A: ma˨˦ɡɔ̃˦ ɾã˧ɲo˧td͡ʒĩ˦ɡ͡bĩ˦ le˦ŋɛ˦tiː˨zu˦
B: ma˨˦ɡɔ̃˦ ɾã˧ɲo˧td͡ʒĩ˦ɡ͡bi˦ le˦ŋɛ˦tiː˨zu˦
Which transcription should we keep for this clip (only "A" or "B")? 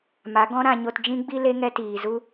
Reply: B